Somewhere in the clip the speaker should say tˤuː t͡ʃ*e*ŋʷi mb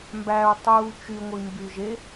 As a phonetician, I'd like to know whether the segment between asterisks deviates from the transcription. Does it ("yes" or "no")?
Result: yes